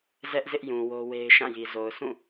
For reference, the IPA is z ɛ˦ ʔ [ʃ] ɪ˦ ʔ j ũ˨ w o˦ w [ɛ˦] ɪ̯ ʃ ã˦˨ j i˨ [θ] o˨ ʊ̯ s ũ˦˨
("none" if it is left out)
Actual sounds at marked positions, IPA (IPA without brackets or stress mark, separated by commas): z, e˦, z